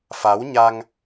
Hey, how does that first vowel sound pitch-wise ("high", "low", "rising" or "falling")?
rising